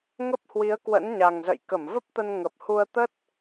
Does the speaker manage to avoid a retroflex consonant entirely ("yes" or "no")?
yes